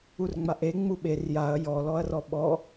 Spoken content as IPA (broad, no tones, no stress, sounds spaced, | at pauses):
u r ŋ͡m a ʔ e ŋ͡m u ɓ e r j a ɐ̯ j ɔ l ɔ ɐ̯ r ɔ ɓ ɔ